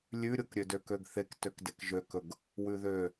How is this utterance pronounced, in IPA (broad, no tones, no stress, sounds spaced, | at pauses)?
lʲ ʉ ɾʲ o k ɾʲ ø d ø k ø ɡ θ e k t ø k d e k ʒ ø k ɵ ɡ | w ʉ ð ø